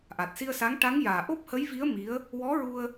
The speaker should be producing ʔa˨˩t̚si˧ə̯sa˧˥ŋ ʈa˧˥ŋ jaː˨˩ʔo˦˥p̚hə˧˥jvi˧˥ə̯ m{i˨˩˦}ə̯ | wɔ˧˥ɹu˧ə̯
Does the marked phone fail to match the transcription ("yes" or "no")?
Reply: yes